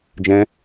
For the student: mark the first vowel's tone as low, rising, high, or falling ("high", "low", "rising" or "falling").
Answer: high